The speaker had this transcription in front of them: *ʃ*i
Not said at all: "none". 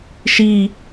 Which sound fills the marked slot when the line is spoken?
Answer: ʃ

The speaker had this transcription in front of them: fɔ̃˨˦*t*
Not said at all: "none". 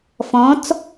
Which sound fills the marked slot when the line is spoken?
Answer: t͡s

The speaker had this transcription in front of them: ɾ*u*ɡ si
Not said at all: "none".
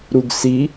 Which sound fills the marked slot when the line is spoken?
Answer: u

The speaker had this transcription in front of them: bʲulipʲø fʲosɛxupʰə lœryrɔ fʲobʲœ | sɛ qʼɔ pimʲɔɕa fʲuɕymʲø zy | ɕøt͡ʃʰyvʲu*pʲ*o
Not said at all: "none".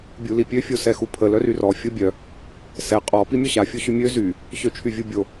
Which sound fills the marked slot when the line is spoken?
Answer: bʲ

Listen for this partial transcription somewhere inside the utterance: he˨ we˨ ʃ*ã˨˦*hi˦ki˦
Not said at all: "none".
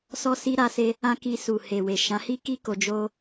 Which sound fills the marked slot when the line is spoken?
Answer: ã˨˦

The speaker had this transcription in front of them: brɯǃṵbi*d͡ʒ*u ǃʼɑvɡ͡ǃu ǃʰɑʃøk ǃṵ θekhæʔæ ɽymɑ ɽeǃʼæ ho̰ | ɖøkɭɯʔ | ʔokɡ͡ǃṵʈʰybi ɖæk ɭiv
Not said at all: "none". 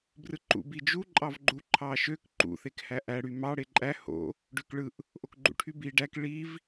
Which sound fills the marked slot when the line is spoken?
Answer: d͡ʒ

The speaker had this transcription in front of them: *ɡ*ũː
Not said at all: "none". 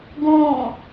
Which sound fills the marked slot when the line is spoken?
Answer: ɡ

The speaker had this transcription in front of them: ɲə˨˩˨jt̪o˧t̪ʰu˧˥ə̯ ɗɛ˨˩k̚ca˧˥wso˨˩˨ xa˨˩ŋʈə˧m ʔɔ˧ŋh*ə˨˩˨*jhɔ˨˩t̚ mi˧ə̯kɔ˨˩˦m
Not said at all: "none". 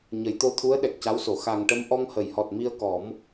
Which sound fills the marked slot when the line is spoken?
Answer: ə˨˩˨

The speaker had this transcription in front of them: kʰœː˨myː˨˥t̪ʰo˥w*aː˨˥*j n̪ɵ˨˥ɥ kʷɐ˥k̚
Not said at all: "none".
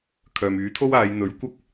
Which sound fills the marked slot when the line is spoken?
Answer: aː˨˧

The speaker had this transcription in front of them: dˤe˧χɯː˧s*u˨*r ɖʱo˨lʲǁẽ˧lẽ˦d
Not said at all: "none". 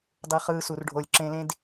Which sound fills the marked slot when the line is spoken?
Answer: u˨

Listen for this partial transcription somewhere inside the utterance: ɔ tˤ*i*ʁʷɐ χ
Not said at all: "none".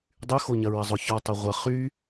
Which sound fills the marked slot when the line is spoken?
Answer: i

